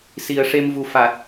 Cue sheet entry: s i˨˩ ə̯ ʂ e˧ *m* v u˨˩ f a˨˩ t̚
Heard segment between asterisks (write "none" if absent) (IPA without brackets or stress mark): m